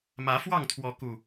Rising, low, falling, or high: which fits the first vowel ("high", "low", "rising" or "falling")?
rising